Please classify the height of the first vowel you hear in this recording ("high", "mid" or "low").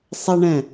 mid